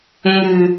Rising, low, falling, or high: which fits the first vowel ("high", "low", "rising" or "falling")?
low